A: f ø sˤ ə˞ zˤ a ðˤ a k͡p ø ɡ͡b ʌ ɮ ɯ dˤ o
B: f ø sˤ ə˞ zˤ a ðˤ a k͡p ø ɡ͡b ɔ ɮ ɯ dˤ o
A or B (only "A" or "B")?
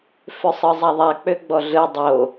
B